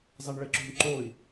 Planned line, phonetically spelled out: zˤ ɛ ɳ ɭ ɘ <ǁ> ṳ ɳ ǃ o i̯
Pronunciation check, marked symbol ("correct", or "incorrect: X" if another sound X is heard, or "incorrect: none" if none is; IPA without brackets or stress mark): correct